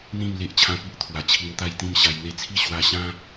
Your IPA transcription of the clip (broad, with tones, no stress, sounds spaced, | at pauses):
n̪ ĩ˥˧ m l e˦ ʔ t͡ɕʰ ã˦ p i˦ ʔ t̪ʰ w a˨˩ t͡ɕʰ i˧ ŋ t̪ a˥˧ j t̪ ĩ˥˧ m ɕ a˧ j n̪ e˥˧ t͡sʰ i˥˧ ɕ w a˧ ɕ ã˦